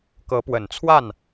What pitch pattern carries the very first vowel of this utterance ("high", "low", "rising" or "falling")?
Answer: rising